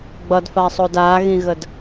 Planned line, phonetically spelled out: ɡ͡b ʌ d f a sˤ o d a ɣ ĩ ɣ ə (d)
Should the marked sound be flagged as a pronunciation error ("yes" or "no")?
no